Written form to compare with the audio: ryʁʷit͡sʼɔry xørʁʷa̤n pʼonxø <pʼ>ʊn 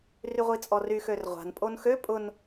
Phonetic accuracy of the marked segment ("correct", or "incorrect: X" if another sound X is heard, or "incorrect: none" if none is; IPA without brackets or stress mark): correct